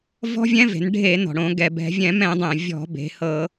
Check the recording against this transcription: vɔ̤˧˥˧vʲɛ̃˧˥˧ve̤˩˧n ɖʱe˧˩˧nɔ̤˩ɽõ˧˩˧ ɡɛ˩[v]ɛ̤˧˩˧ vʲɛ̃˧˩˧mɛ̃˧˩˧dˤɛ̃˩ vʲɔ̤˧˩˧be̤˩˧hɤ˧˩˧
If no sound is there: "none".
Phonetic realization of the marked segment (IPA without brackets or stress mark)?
b